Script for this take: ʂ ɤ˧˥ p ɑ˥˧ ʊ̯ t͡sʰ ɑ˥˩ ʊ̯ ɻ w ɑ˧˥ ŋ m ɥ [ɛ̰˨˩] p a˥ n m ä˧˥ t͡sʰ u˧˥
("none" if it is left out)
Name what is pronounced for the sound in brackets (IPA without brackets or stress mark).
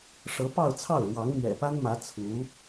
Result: ɛ̰˨˩